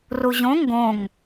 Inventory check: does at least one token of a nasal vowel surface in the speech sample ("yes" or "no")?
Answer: yes